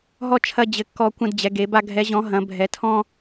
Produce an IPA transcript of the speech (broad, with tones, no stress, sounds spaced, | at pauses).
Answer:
ɦ ɔ˥ t͡ʃʰ ɐ˥ d͡ʑ ɘ˧˥ kː ɔ˥ kʷ ɐ̃˥ d d͡ʑ ɛ˧˥ ɡ e˧˥ b a˥ ɡʱ ɛ˧˥ ʑ ɔ̃˧˥ ɦ ɐ̃˧˥ bʱ ɛ˧˥ tʰ ɔ̃˥